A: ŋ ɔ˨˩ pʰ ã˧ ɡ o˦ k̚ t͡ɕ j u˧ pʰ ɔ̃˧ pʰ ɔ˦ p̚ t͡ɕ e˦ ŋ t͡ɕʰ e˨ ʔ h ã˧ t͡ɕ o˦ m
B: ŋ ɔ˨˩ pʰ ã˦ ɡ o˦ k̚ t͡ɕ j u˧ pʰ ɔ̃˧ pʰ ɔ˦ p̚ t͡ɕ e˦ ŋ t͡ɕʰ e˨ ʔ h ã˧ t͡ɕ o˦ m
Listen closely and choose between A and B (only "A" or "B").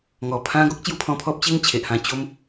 B